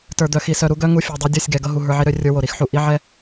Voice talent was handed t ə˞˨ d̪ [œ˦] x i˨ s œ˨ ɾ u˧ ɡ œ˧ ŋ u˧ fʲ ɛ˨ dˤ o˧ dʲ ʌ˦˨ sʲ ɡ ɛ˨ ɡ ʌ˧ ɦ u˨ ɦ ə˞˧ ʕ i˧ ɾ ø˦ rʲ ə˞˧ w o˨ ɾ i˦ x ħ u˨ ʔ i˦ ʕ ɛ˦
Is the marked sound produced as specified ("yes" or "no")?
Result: no